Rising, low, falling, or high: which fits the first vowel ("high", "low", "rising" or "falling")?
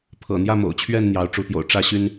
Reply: low